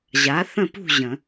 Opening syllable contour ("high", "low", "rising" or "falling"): rising